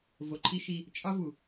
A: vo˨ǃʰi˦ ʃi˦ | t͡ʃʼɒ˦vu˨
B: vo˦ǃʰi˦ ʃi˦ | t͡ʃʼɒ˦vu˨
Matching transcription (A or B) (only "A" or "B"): A